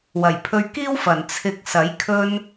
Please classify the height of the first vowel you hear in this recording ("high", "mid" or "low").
low